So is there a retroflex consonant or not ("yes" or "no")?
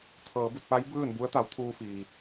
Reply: no